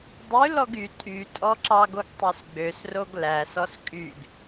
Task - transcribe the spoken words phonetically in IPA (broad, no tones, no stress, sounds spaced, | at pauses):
dˤ ʉ l ɔ ɡ y tʼ y tʼ ɔ ǁ ɑ ɡ o ɡ tˤ ø s ɡ͡b ø s r o ɡ l æ s ɔ s kʼ y ɡ